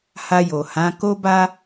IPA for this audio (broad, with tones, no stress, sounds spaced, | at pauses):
h a˧ j o˨ h ã˨˦ k o˦ b a˦